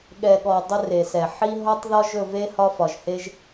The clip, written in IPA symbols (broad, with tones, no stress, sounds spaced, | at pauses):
ɠ ɛ˩ ɠ ɔ˩ dˤ ɵ˦ r e˩ s ɛ˩ ħ i˦ ɦ ɔ˦ tˤ ð ɒ˦ ʒ ɵ˦˨ v e˦ h ɒ˦ f ɒ˩ ʒ h e˦ ʒ